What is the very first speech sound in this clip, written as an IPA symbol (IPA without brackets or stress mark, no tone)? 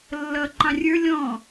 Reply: lː